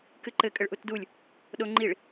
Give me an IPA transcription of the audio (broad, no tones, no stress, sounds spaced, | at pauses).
k ɨ ǃ ɘ kʼ ɘ ɭ ʔ u t d u lʲ | ɗ o ŋ͡ǃ i ɭ